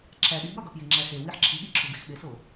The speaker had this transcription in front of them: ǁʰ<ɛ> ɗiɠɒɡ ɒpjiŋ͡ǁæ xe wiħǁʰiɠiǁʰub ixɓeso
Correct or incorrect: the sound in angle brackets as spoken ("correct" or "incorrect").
incorrect